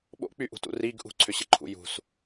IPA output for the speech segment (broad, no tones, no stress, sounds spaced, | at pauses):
ɓ o̰ k͡p y ʔ ṳ t ṵ r i ɡ ʔ ṳ ǀʰ ʏ ɕ ɘ ǃʰ ṵ j ṳ s